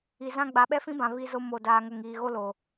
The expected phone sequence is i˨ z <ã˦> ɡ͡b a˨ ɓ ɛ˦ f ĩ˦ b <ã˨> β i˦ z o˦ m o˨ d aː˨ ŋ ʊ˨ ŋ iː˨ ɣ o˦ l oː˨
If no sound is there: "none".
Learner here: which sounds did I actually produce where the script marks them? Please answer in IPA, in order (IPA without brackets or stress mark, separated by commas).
ã˦, ã˨